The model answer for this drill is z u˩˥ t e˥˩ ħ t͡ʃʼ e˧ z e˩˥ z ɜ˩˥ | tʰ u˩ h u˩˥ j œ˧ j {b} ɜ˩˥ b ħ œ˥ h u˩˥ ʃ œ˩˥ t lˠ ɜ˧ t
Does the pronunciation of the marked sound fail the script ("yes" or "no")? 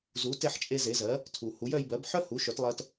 no